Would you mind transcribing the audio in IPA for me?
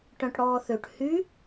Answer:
ʈ œ̃ ʈ ɽ ɔː θ ø ʈ h y

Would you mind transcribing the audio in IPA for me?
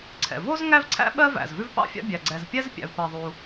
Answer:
ǀʰ ɛ̰˩ v o˥ z ŋ æ˥ v ǀʰ æ̰˥ ɓ ɜ˥ v æ̰˩ z v ʉ˥ v p ɑ̰˥ fʲ ɑ̰˥ bʲ æ˩ ɡ͡ǀ ɛ˩ z pʲ ɛ˥ z pʲ æ̰˩ v p ɜ˩ ðˤ u˩

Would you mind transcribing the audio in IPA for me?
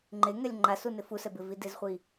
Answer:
ŋ͡ǃ e ŋ ɛ lʲ ŋ͡ǃ a s u n ɪ f u s ɛ b ɪ v i d ɪ z χʷ i

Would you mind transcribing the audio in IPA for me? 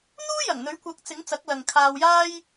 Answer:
n̪ uː˥ j ɐ˨˩ ŋ n̪ ɵ˨˥ ɥ kʷ ɐ˨˥ k̚ t͡s ɪ˨˥ ŋ t͡s ɐ˨˥ k̚ l ɐ˨ ŋ kʰ aː˧ w j aː˥ j

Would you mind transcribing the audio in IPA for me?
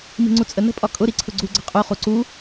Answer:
m i̤ ŋ͡ǀ u t͡sʼ ə n ə̤ pʼ ɒ kʼ ʊ ɾ i ǀʰ ʊ ɡ͡ǀ u ɡ͡ǀ ə̤ qʼ u χ u ǀ u

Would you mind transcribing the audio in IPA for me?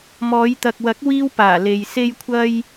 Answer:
m ɔː˨˧ j t̪ ɐ˨ k̚ w ɐ˨˥ k̚ w iː˥ w p aː˨˩ l e˨ j s e˧ j kʷʰ ɐ˧ j

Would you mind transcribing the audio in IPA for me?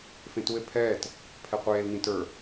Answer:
f ẽ t u e̯ pʰ ɛː t | pʰ ɛ qʷ eː l n ĩ t ə˞

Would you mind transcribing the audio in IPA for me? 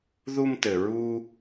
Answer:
ð u˧ m t ɘ˩ ɹ u˧

